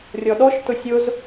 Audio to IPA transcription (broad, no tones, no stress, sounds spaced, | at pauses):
rʲ ɔ ɗ ɔ ʃ t ʊ sʲ ʊ z